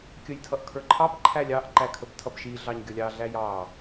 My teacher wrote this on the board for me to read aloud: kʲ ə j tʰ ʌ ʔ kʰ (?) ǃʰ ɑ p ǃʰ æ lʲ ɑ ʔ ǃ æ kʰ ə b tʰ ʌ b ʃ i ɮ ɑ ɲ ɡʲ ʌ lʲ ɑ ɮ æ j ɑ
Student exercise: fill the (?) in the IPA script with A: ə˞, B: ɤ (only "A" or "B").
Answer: A